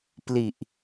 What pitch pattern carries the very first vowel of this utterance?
low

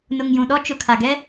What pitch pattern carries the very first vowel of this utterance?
low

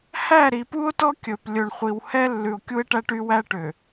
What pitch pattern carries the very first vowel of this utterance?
falling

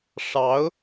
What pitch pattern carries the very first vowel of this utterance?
rising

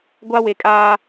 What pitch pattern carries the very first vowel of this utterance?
high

